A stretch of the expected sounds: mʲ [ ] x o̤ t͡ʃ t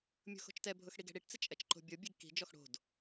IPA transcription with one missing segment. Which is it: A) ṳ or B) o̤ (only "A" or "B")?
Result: A